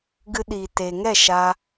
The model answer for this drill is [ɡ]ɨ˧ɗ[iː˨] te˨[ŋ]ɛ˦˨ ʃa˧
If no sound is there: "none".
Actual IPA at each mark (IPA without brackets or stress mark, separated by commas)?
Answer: ɡ, iː˨, ŋ